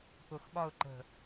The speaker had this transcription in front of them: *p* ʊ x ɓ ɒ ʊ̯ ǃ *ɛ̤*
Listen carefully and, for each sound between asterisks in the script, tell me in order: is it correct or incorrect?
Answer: correct, incorrect: ə̤

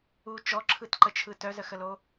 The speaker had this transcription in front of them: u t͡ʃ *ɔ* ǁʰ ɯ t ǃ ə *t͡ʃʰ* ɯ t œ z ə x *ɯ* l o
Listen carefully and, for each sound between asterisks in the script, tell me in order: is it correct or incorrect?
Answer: correct, correct, incorrect: ə

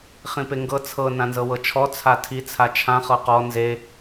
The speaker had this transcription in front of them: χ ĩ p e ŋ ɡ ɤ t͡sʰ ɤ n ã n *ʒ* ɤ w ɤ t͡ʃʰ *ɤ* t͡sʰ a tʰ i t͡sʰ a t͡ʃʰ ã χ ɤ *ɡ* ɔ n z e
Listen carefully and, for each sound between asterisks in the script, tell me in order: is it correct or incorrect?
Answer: incorrect: z, incorrect: ɔ, incorrect: q

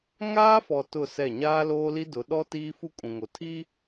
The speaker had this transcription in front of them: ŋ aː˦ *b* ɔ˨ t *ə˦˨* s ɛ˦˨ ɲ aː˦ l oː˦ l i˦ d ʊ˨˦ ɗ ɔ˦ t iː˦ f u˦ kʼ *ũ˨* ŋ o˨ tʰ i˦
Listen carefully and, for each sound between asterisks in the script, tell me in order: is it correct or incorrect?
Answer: incorrect: f, incorrect: ʊ˦˨, correct

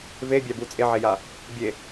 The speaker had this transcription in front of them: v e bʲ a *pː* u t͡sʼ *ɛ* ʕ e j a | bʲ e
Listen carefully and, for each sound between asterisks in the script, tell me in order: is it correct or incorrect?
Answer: incorrect: b, incorrect: e

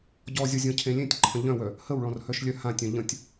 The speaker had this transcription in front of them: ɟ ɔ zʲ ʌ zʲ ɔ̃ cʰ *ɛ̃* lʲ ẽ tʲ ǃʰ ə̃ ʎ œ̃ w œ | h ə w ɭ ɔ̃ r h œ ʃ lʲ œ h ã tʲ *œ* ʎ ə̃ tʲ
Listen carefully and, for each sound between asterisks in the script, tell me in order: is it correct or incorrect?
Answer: incorrect: ẽ, incorrect: œ̃

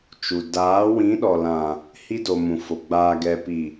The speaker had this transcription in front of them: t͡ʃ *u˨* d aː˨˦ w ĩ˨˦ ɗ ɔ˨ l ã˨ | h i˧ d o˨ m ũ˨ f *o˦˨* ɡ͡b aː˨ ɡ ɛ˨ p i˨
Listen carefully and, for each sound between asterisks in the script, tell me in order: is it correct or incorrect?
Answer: correct, incorrect: o˨

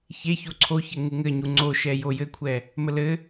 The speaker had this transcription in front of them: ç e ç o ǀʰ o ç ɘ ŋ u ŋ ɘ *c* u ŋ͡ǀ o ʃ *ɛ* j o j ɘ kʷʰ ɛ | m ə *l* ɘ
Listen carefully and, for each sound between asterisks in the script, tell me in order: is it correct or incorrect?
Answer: incorrect: ɲ, correct, correct

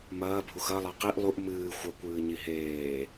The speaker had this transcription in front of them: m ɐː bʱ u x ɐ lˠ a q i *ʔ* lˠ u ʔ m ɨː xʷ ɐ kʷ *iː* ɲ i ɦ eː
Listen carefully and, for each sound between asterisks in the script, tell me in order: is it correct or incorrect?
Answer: correct, incorrect: ɨː

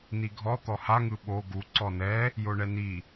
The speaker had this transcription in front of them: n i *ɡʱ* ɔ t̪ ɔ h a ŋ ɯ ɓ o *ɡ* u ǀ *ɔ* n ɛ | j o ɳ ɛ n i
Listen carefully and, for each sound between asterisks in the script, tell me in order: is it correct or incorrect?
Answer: correct, correct, correct

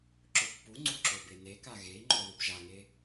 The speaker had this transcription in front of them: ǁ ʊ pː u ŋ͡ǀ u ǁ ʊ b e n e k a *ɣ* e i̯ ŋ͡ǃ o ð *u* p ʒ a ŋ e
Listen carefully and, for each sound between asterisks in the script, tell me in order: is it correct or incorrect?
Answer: correct, correct

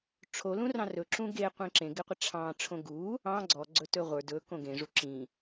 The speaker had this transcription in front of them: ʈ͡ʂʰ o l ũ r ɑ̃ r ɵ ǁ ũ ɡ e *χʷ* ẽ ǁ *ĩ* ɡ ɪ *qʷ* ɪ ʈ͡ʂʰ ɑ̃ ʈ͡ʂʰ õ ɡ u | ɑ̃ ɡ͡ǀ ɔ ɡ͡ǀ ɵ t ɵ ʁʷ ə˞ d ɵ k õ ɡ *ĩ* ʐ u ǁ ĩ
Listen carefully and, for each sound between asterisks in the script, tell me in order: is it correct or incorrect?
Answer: incorrect: qʷ, incorrect: ẽ, correct, incorrect: ẽ

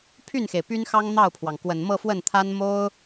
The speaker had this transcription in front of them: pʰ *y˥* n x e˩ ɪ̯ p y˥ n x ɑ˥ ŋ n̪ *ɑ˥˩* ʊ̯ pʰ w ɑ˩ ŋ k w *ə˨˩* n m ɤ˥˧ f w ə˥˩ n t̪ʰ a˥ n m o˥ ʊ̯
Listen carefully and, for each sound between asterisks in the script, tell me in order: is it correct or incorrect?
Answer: incorrect: y˥˩, correct, correct

